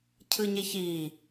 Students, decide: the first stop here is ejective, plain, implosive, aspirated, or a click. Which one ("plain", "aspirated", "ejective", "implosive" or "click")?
aspirated